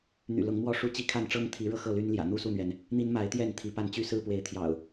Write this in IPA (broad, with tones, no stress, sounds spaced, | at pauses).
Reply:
n̪ y̰˨˩ l ʊ˨˦ ŋ m w ɔ˥˨ ʂ u˥˨ t͡ɕ i˦ kʰ a˥˨ n ʈ͡ʂ ɤ˦ ŋ t̪ʰ i˨˦ ɻ ɤ˧ x ɤ˥˨ l y˦ n l j ä̰˨˩ n̪ u˥˨ s u˥˨ n̪ ɥ ɛ˩ n | n̪ i˦ n m a˨˦ ɪ̯ t̪ j ɛ˥˨ n t̪ʰ i˨˦ p a˥˨ n t͡ɕ y˦ s ɹ̩˥˨ p w e˨˦ ɪ̯ t̪ʰ j ɑ̰˨˩ ʊ̯